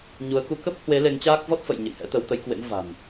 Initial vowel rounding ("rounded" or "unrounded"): rounded